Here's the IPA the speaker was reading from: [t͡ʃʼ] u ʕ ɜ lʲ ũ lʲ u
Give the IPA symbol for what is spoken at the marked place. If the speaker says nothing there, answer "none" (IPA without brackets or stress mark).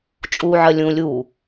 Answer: t͡ʃʼ